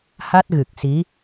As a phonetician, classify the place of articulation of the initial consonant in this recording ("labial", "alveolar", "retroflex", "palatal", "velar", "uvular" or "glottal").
glottal